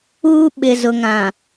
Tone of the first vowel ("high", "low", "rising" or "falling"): high